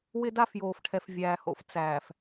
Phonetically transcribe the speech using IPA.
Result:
wɪ˦da˦fjoː˨fʈʰɛ˨f vʲæː˨ho̰˦f t͡sæː˨f

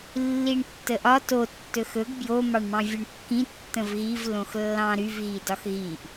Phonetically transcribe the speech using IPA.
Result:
lːiɳtːəʔɒ to tːɵxɵɡ bjo mɑɳmɑ̃vʲoɳkːĩ tːə̃vɣiv lõxlːɑ̃ɾyv ɣidɒxɣiʔ

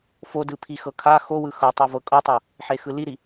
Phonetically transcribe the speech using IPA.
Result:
fodɯ pʰixɤkʰa xowɯ xɤtˤo vɤkʼɤtˤɤ | ħexɯliɾi

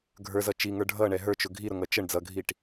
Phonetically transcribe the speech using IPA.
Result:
ɡʱə˞zʌ t͡ʃiŋə˞ ɖʱʌɳɛ ɦə˞t͡ʃʊ ɡʱiɾʊŋʌ t͡ʃəɳ d͡zʌɡʱiʈ

